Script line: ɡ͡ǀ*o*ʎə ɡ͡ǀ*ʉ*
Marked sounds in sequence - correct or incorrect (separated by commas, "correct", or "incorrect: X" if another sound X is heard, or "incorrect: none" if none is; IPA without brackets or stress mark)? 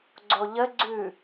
correct, correct